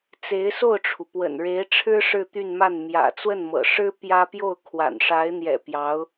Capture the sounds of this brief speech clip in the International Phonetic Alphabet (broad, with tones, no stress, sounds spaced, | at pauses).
t͡s e˧˥ ɪ̯ s o˥˩ ʊ̯ ʈ͡ʂʰ u˩ p w ə̰˨˩ n ɻ e˧˥ ɪ̯ ʈ͡ʂʰ ɻ̩˥ ʂ ɻ̩˥˧ t̪ y˥˧ n m a˥˩ n m j ä̰˨˩ t͡s w ə˥˩ n m ɤ̰˨˩ ʂ ɻ̩˥ p j ä˥ p j o˥˩ ʊ̯ kʰ w a̰˨˩ n ʂ a˧˥ ɪ̯ n̪ j ɛ̰˨˩ p j ɑ˧˥ ʊ̯